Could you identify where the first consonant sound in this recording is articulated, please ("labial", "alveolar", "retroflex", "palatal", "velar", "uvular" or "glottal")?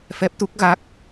labial